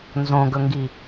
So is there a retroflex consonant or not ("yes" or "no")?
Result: no